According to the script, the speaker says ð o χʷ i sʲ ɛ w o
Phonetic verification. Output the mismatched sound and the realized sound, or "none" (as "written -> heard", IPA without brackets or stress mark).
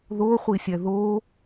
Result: w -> ð